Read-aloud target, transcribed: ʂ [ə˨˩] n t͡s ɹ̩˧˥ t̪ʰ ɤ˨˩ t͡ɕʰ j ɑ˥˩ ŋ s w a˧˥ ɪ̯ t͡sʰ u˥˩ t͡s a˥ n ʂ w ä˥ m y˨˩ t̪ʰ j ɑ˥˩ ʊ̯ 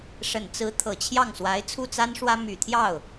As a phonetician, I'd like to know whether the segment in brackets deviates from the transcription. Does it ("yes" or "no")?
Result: no